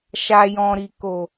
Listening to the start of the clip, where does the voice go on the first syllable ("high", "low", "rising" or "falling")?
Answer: low